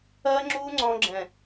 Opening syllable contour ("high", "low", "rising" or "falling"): high